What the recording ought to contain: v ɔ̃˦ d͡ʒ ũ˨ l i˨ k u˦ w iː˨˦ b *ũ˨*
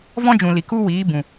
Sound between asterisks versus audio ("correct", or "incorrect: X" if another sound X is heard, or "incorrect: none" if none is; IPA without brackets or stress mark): correct